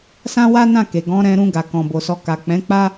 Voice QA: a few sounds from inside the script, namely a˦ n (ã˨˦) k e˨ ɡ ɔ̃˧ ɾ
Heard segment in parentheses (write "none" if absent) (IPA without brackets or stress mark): ã˦˨